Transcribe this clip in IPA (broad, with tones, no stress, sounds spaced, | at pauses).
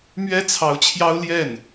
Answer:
m ɥ ɛ˥ t͡sʰ ɑ˧˥ ʊ̯ t͡ɕʰ j ɑ˥ ʊ̯ l j ɛ˥˩ n